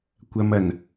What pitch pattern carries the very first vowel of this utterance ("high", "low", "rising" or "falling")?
low